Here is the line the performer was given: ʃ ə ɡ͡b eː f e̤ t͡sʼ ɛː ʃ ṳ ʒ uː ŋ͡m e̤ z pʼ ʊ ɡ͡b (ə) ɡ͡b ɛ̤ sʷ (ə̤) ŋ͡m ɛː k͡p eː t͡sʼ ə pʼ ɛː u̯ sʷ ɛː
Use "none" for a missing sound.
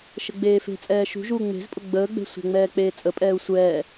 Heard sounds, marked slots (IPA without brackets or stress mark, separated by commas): əː, ə̤